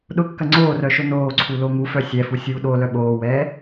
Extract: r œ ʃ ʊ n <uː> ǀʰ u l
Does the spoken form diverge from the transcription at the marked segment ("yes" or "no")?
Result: yes